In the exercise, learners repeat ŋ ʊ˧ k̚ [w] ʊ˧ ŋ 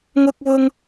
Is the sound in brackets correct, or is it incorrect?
correct